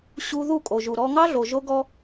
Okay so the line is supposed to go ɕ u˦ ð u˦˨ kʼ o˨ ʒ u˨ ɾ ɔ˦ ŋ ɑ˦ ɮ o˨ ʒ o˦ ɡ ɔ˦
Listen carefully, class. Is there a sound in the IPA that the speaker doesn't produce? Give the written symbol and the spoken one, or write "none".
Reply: none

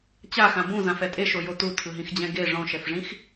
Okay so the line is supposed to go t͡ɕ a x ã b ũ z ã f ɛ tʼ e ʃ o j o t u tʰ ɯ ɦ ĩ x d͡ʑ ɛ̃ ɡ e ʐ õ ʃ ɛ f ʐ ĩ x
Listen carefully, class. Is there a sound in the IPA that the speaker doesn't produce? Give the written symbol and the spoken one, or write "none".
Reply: none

